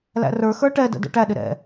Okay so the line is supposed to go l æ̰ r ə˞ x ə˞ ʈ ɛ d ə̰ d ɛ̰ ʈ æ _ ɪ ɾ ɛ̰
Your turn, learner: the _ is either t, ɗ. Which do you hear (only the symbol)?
ɗ